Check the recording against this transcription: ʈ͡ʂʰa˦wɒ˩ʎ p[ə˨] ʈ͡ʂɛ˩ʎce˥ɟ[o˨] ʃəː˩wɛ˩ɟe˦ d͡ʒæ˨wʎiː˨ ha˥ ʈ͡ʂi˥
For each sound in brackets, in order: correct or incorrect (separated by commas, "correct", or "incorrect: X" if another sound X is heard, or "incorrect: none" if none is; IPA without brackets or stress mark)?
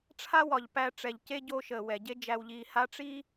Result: incorrect: æ˨, incorrect: o˦